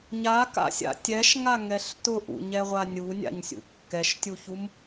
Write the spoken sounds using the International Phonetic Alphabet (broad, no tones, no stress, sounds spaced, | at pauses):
ɲ a k a̰ sʲ a̰ tʲ ɛ ʃ ŋ a ŋ ɛ ɬ t ʊ ʔ ṵ ɲ ɛ ʁʷ a nʲ u nʲ a̰ ɲ sʲ ṵ kː ɛ ʃ tʲ u ç u m